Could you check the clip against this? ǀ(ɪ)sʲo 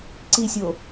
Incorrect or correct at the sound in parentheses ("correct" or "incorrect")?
incorrect